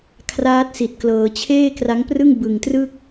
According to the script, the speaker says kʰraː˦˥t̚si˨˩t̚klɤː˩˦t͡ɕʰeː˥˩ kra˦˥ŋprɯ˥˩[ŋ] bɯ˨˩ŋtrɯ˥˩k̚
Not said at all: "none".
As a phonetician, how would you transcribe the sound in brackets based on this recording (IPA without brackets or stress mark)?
ŋ